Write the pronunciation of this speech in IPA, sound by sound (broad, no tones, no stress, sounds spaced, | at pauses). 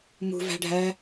m ṳ v æ̤ ɖʱ æ